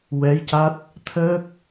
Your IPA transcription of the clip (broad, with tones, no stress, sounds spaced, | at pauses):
w ɛ˧˥ j c a˦˥ t̚ | t̪ʰ əː˦˥ k̚